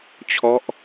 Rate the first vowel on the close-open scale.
mid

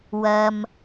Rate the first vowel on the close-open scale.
open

